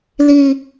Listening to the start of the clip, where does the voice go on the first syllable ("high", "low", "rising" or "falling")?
high